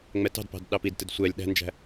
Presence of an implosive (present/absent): present